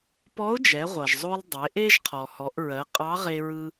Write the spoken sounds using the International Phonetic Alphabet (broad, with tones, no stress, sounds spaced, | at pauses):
p ɔ˧˥ ʊ̯ d͡ʒ ɛ˩˧ ʁʷ ʌ˩ ʒ zˤ o˧ lˠ dˤ e˩˧ ʔ e˥ ʒ qʰ ɔ˩ h ɔ˩˧ ʔ ɹ ɜ˩˧ qʼ ɑ˧˥ ʁ e˧ ɹ ɯ˧